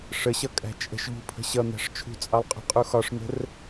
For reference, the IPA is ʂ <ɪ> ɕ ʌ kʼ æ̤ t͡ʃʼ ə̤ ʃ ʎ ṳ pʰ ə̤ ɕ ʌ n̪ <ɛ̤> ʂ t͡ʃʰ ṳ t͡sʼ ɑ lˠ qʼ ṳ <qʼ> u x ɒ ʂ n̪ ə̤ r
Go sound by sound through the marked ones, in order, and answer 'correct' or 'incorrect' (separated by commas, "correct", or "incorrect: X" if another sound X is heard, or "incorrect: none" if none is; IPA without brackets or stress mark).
incorrect: ə, incorrect: æ̤, correct